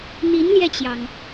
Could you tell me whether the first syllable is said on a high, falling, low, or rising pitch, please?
rising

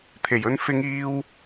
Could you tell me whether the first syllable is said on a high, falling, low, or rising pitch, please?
low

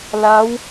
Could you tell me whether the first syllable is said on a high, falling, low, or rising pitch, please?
rising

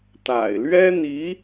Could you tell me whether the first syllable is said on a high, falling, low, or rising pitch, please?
low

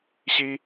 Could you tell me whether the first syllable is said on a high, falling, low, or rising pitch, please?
high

